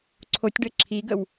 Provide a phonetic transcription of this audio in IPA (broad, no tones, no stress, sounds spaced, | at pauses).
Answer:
ǀʰ o tʲ ɖ ə ǁʰ i ɡ ə w